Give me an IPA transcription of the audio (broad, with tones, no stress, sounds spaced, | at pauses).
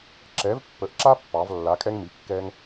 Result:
ǁ ɛ˩˥ v pː ə˩˥ ʔ ǁ a˦ pː ɑ˩˧ v lː a˩˥ kʼ ɛ˦ ŋ m i˩˧˩ kː ɛ˦ ŋ